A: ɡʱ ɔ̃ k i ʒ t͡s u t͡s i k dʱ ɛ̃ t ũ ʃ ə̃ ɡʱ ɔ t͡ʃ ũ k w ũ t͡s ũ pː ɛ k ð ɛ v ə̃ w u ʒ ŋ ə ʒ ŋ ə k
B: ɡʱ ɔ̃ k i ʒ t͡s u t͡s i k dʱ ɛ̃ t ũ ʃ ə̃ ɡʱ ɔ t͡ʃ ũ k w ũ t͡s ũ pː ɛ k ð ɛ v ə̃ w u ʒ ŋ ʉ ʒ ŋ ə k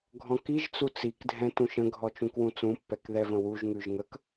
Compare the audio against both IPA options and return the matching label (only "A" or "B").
B